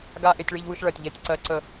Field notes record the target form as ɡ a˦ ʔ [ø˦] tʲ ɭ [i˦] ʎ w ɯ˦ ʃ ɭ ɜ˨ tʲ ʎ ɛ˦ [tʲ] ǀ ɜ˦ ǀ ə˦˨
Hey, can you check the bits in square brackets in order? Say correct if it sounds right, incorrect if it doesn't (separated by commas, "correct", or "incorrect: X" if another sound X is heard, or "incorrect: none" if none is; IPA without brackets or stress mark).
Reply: incorrect: e˦, correct, correct